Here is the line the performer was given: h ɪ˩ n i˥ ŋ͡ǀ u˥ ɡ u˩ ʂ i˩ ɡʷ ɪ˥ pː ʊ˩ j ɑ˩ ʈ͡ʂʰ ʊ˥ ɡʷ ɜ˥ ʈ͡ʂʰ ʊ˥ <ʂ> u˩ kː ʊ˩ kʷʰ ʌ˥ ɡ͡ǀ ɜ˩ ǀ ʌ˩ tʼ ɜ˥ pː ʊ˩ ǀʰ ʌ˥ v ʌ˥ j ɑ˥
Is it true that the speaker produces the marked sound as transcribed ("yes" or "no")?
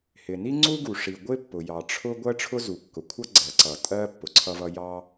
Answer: no